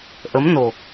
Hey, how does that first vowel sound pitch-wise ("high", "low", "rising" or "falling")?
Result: rising